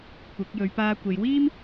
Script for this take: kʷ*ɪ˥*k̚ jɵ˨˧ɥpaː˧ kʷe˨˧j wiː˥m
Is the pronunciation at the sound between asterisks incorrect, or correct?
incorrect